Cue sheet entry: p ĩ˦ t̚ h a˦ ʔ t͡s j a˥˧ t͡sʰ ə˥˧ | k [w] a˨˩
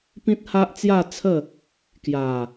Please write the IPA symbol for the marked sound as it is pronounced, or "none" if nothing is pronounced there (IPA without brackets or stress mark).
j